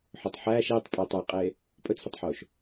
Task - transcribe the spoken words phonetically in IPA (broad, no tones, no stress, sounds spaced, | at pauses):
ħ ɵ tˤ ħ æː ʃ eː tˤ pʼ æ tˤ æ qʼ eː | pʼ ɵ t͡sʰ ɵ tˤ ħ oː ʃ